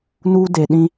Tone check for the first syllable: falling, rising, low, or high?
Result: high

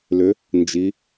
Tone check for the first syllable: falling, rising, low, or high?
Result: rising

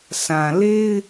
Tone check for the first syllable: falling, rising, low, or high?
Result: low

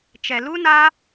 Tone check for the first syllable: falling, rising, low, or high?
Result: low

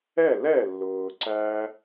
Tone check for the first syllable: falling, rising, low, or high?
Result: falling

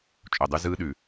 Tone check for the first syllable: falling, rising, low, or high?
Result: low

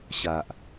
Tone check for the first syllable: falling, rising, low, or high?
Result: low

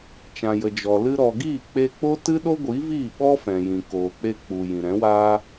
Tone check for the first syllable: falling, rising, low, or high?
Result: low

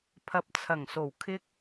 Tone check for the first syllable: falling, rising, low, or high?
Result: low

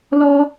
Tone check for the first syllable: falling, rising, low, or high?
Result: high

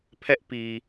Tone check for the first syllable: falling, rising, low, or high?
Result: high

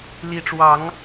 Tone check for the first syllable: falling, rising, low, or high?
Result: rising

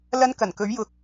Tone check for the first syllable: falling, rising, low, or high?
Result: high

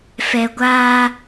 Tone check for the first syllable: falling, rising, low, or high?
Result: low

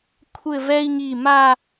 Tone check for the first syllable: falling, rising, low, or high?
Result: falling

